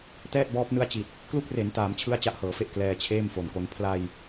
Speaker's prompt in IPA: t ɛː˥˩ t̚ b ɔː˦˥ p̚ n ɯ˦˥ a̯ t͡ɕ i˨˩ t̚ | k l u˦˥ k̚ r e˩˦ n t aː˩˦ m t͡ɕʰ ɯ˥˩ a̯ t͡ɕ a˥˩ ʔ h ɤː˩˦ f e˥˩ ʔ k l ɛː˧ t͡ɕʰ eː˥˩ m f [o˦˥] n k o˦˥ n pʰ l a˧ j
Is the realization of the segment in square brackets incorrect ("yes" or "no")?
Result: yes